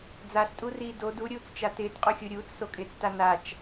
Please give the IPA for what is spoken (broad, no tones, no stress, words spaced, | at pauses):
d͡zastʼuriː do duɾʲuːt͡st͡ʃa tɪːtqʼuxʲu ɾʲuːt͡ssokʼɪːt͡sta nat͡ʃ